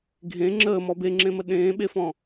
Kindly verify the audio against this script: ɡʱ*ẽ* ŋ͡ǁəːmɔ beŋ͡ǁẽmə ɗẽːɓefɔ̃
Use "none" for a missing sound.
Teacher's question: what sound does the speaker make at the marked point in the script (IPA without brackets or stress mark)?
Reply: ẽ